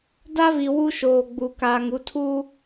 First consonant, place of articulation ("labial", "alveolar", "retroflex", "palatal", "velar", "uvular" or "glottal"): alveolar